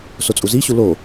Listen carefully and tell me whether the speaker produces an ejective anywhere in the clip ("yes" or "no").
yes